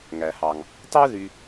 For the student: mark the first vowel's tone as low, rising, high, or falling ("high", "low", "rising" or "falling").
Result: low